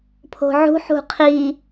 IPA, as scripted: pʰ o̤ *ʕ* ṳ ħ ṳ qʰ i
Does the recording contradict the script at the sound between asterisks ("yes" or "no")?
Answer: no